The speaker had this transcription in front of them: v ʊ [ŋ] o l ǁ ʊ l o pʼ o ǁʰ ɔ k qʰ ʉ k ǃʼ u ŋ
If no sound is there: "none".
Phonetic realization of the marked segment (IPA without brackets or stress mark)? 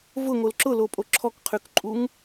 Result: ŋ